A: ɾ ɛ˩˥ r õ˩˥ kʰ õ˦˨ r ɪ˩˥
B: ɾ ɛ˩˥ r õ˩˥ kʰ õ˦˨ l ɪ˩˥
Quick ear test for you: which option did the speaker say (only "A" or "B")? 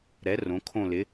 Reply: B